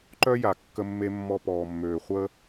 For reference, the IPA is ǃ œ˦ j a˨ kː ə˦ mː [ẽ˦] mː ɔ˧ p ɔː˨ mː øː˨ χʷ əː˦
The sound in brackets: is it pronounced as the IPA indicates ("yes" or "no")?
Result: no